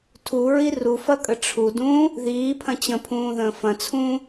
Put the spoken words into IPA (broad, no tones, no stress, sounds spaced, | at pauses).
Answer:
tʰ u ɹ i r u f ɐ kʼ ə ʈ͡ʂʰ u d ũː | ð iː pʰ ɐ̃ t͡ɕ ə̃ pʰ ũː ð ə̃ː f ɐ̃ t͡sʰ ũː